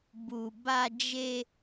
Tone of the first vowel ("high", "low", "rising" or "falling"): low